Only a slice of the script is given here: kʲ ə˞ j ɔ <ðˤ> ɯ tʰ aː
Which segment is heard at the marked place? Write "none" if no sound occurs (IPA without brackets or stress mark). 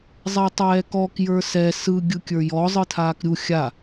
zˤ